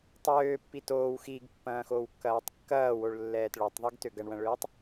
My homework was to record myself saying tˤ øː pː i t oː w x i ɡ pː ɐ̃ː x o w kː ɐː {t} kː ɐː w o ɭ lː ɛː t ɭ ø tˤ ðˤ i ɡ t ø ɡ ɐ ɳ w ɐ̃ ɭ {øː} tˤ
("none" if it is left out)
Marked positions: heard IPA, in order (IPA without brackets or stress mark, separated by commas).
tˤ, øː